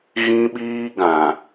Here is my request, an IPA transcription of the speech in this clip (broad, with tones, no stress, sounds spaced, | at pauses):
ɣ ĩ˦ ɓ iː˦ ɡ ã˨